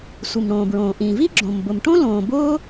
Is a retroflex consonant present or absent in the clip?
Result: present